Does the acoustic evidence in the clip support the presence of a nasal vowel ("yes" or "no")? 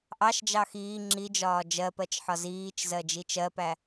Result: no